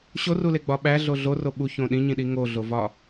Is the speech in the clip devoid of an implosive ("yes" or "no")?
no